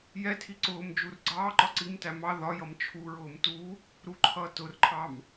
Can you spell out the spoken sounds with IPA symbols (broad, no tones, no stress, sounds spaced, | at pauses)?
j ɛ tʰ i ǀ ʊː m d͡ʒ u r ɡ͡ǀ ɑː ǃ ɒ ǀ i m t æ m ɑ ð ɒ j ʌ m t͡ʃʰ u ɹ ʊː m t u | ɾ u ǃʰ ʌː t ʊ r ǃʰ ɑ m